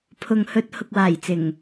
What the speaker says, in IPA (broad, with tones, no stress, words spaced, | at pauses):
pʰʊ˨ŋhɵ˧t̚ hʊ˨k̚waː˨˩jt͡sɪ˨˩ŋ